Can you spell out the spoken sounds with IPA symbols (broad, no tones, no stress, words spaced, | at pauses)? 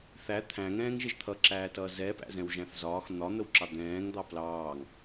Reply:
θæ t̪ʰæ̃ŋɛ̃ːŋ ʒɪʒt̪ʰʌǁæːtʌː zɛpæ̰ zɛ̃wʒæ̃θzɒːx n̪ɒn̪əwǁɑ d̪ɛ̃ːŋ d̪ɑplɑːŋ